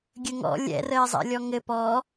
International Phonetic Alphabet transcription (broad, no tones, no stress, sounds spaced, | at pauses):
ɡʲ ə ŋ ɔ̰ lʲ ɛ̰ r ə e̯ zˤ ɛ̰ lʲ ɔ ŋ ɘ p ɔ